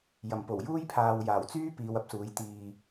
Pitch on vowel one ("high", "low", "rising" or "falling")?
low